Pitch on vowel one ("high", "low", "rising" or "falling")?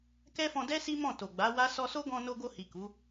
high